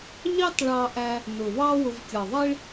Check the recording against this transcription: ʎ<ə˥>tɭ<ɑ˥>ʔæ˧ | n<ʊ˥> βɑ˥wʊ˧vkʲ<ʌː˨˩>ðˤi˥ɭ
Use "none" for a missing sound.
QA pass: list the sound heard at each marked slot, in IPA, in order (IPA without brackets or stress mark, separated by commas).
ɑ˥, ɑ˧, ʊ˨˩, ʌ˨˩